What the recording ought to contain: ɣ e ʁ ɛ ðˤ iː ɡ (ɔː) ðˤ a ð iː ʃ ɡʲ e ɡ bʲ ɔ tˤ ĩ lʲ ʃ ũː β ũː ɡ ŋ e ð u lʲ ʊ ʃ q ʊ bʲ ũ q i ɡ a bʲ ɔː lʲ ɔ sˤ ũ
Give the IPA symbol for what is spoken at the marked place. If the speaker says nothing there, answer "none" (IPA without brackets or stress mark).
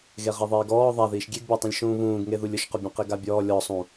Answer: ɔː